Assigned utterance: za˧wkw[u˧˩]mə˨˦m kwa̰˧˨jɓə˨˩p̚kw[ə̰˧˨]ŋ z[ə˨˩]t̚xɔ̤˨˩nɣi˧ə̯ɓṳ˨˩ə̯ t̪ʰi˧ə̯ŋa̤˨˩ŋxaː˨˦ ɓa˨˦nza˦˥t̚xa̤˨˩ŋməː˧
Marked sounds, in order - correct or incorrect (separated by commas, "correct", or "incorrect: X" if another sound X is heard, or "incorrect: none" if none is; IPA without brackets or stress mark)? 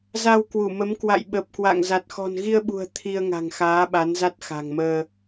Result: correct, incorrect: a̰˧˨, incorrect: a˨˩